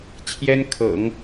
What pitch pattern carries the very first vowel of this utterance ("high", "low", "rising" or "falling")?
high